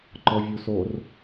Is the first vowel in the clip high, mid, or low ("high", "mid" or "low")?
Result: mid